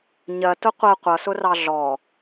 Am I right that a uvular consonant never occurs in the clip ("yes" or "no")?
no